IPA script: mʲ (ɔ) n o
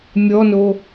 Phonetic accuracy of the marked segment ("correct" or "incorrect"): correct